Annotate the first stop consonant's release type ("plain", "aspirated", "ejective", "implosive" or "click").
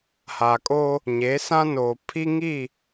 ejective